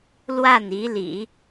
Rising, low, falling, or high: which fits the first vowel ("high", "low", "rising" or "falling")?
falling